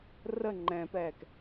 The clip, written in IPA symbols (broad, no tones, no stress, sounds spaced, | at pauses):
r ə ŋ͡ǃ ɛ̃ p ɛː k